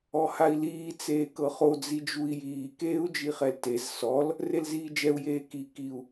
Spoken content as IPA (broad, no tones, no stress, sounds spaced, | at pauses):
ɔ h a i̯ l iː t͡s eː k ɤ χ o d͡z i d͡ʒ u i̯ j iː k eː u̯ d͡ʒ i χ ɛ l t e z s ɔ l | r e l z iː d͡ʒ ɛ u̯ j eː k i k i u̯